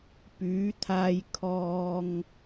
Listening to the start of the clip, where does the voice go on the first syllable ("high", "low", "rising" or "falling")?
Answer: rising